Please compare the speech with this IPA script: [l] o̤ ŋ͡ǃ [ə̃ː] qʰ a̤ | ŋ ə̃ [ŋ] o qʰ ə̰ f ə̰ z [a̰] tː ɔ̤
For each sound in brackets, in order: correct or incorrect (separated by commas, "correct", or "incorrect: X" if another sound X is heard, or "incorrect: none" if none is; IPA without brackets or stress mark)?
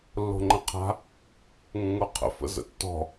incorrect: lː, incorrect: ə̃, correct, incorrect: ə̰